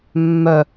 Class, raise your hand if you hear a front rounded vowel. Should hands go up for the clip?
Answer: yes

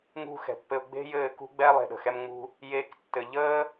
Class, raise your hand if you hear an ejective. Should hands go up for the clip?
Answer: no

